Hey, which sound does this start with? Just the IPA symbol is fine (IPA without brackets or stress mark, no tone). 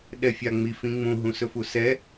ɗ